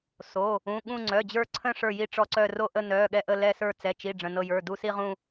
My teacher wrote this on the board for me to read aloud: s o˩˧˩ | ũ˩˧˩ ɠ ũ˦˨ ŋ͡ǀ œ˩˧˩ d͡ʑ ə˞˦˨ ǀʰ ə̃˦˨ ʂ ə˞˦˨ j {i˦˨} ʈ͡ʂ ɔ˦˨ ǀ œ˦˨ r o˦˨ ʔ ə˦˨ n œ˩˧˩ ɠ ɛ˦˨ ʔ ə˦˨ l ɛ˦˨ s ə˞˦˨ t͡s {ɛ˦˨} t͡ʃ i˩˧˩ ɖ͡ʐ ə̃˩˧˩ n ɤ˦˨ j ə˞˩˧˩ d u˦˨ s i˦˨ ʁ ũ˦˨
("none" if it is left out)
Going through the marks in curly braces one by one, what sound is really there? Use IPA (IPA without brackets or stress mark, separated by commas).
i˦˨, ɛ˩˧˩